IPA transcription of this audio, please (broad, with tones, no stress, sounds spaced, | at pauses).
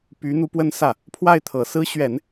p y˧˥ n̪ u˧˥ p w ə˥ n s ä˥˩ | pʰ w a˥˩ ɪ̯ t̪ʰ ɤ˨˩ s ɹ̩˥ ɕ ɥ ɛ˨˩˦ n